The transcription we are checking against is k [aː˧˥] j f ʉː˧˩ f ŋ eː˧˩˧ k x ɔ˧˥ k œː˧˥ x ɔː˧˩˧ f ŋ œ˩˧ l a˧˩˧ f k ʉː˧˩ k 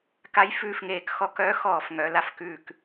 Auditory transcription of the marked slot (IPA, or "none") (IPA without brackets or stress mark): a˧˥